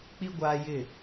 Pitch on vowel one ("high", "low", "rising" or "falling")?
high